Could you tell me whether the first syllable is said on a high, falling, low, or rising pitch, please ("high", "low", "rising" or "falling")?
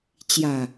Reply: low